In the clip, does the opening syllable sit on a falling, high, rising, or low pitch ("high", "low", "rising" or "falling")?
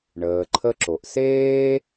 low